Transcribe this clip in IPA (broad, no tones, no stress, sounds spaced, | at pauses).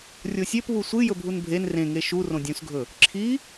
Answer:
rʲ o sʲ e p β u sʷ ɨ j ɵ bʱ u n bʱ e n r ẽ ŋ e ʃ u r õ dʲ ũ s ɡʱ ɵ | ǁʰ i